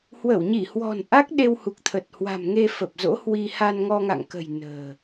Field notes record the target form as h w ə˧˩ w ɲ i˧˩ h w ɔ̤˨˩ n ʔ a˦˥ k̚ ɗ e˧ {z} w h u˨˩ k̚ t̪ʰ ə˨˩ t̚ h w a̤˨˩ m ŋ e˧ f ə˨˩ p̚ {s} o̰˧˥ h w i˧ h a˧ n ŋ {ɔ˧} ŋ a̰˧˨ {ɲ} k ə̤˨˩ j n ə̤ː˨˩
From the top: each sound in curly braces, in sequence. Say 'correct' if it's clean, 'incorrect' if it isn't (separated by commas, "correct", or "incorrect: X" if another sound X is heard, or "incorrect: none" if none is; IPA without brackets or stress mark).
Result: incorrect: none, incorrect: z, correct, incorrect: ŋ